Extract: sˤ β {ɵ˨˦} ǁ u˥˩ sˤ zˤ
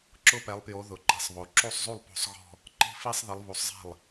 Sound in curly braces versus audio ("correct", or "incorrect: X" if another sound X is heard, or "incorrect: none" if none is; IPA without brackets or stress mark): incorrect: o˨˦